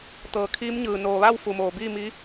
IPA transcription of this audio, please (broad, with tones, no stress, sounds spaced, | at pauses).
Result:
t̪ ɤː˩ kʰ iː˧˥ m ɲ ɯː˩ n oː˩ ʋ a˥˨ w f u˩ m oː˩ b iː˥˨ m i˧˥